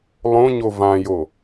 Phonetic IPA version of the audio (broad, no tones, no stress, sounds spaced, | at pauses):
lˠ õ ɲ o v ã j o